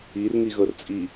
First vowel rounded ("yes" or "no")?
no